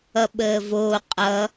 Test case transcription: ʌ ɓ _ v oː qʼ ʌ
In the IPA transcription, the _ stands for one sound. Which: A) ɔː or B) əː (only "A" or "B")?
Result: B